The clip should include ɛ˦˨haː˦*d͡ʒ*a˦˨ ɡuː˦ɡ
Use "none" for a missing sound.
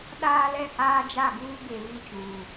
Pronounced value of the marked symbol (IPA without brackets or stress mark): d͡ʒ